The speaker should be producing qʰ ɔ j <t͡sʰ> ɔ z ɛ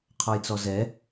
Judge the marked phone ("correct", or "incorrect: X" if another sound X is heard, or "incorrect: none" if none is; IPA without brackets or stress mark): incorrect: t͡s